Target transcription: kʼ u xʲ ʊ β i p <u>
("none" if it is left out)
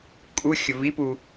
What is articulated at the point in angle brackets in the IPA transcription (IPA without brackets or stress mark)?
u